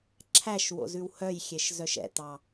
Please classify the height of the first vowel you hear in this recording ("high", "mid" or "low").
low